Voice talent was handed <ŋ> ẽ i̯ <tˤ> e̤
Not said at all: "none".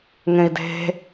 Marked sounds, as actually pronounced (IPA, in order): ŋ, d

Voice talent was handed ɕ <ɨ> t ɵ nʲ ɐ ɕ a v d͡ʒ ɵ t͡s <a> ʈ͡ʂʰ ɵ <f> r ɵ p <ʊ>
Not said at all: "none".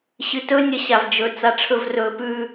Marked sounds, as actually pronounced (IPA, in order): ɨ, a, v, ʉ

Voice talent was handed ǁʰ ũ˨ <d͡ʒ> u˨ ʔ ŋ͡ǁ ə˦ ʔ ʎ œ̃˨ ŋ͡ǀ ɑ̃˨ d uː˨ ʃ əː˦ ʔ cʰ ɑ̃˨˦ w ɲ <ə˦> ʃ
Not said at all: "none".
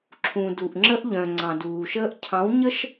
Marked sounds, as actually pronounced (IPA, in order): d, ə˦

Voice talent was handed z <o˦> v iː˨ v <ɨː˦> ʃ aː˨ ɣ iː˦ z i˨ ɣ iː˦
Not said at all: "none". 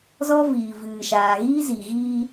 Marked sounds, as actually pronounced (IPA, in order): ɔ˦, ɨː˨

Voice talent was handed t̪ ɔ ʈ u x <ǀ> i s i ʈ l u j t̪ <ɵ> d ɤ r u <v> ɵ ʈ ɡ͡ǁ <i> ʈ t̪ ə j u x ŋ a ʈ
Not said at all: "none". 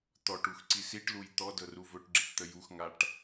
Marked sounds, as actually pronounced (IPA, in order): ǀ, ɔ, v, i

